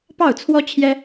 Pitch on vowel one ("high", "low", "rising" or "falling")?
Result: falling